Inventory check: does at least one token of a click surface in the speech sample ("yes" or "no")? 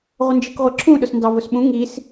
yes